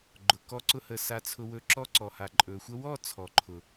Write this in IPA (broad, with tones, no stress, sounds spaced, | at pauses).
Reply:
ɡ͡ǃ ʊ˨ k ɔ˦ ǀ ʊ˦ h ə˧ s a˧ t͡sʰ ʊ˧ w ɵ˧ ǁ ɔ˦ ǀ ɔ˨ h a˨ ǃʼ ɵ˨ xʷ ə˦ w ɔ˦˨ t͡sʰ ɔ˨ ǃʰ ʊ˨